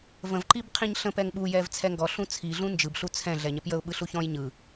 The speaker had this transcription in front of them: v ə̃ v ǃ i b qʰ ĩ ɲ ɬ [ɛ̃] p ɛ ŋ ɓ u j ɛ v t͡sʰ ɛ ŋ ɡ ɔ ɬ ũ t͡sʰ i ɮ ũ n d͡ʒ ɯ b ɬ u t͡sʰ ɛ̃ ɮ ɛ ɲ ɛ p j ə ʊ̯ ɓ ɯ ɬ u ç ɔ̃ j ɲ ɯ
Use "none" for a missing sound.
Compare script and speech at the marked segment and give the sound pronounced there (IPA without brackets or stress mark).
ə̃